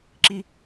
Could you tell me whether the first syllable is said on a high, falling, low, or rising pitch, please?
high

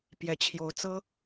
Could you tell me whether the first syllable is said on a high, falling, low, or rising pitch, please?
rising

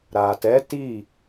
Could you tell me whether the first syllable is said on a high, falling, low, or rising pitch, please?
low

